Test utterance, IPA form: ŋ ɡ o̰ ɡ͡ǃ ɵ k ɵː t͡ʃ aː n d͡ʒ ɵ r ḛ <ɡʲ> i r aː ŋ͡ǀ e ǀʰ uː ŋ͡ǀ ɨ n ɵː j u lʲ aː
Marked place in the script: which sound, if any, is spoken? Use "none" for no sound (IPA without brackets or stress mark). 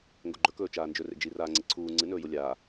d͡ʒ